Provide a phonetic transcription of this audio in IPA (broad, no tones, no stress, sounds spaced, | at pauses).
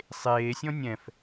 sˤ eː sʲ ɔ̃ nʲ ɛ̃ f